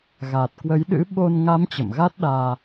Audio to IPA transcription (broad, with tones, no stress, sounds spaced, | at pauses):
ɣ a˨˩ t̚ k w ə˨˦ j ɗ ɨ̰˧˥ ɓ o˧ n ŋ a˨˦ m t͡ɕ ə̰˧˨ m ɣ a˦˥ t̚ ɗ aː˧